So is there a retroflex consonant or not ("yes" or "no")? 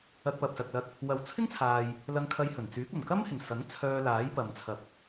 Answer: no